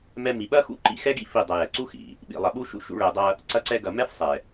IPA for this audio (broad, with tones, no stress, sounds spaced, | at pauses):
m ɛ˧ m i˨ ɓ ɐ˦ x ṵ˦ ǃ ḭ˧ x ɛ˦ ɡ ḭ˦ f i˦˨ dˤ ɐ˧ j ɛ˨ ǀ u˦ x ḭ˨ | ɓ ḭ˨ lˠ ɐ˨ ɓ u˦ ʃ ṵ˧ ʃ ṵ˧ ɭ ɛ˨ dˤ ɐ˧ | ǀ ɐ˧ ǀ ɛ˧ ɡ ɐ˨ m ɛ˦ f sˤ ɛ˨